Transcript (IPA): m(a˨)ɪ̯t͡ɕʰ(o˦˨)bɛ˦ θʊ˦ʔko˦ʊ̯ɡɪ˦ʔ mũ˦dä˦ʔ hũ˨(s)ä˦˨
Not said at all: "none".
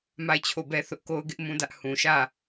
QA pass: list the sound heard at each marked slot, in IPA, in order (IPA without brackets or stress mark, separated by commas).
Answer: a˦˨, o˦˨, ʃ